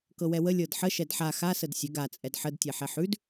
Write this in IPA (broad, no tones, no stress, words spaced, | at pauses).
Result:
kɤwɛwə lʲɤdħə ʃɛdħa xasəd sʲə ɡat͡sʼɛd ħədtʲɛ ħɛħʉd